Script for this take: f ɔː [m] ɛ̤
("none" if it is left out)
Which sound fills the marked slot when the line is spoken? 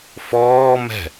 m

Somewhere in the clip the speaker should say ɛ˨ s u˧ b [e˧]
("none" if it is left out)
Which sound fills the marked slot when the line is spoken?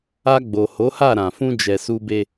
e˧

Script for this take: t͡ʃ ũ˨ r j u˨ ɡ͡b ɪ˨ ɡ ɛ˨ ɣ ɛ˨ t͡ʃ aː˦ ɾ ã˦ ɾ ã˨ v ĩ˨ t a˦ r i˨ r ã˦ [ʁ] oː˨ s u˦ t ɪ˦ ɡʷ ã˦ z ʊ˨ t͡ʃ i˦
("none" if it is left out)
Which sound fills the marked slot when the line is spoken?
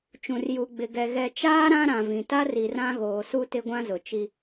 ɣ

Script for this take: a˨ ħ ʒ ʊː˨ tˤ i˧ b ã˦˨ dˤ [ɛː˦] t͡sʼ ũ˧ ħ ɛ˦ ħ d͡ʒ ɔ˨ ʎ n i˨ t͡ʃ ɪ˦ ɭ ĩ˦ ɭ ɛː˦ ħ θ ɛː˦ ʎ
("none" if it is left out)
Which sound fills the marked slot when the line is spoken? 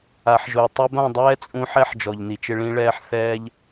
ɛː˦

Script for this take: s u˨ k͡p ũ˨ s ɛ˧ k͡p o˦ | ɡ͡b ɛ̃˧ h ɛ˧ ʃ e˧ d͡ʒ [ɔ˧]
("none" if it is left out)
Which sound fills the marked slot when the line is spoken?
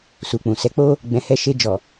ɔ˨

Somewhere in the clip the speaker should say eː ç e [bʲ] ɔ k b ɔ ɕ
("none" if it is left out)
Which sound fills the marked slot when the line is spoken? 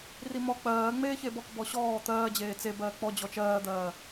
b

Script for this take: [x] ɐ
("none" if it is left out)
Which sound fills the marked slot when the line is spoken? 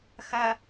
x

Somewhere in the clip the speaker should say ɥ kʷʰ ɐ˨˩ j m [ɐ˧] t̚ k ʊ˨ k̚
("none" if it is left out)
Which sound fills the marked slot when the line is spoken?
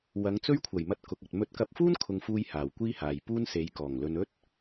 ɐ˧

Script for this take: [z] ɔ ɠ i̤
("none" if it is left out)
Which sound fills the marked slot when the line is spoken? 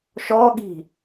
ʃ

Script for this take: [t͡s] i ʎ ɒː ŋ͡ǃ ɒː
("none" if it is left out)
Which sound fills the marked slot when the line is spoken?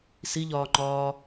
s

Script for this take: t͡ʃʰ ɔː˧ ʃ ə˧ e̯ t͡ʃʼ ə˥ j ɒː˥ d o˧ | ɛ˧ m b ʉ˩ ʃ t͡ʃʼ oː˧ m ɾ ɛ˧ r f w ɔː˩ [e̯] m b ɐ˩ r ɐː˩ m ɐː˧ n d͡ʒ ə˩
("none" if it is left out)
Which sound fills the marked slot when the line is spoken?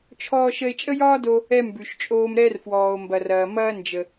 o̯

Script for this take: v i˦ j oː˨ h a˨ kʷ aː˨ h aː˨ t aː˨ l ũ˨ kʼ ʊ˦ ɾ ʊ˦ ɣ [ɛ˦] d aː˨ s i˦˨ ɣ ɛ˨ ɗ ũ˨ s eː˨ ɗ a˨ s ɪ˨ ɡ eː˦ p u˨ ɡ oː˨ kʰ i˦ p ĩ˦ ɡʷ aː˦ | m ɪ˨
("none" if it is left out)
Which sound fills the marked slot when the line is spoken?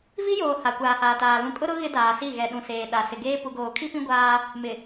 ɪ˦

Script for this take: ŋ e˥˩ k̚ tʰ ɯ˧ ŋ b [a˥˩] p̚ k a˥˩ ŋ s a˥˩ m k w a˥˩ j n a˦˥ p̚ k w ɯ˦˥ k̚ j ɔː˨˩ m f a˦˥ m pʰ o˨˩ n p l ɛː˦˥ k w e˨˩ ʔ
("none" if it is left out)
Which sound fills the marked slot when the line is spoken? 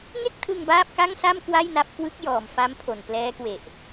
aː˥˩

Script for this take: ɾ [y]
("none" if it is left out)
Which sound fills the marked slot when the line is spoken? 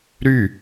y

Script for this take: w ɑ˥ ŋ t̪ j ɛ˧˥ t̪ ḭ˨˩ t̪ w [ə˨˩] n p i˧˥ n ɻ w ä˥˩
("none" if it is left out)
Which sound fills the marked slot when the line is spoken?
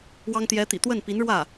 ə˥˩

